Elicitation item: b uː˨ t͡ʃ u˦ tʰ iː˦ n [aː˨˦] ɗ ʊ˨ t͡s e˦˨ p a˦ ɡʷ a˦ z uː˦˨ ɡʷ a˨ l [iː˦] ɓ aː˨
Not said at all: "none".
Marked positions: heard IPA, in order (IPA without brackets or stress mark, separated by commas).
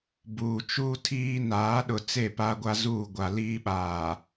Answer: aː˨˦, iː˦